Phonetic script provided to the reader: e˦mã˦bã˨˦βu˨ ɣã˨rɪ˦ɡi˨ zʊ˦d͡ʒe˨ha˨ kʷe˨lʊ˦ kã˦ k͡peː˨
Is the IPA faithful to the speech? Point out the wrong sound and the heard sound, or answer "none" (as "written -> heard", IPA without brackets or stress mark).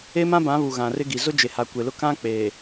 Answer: none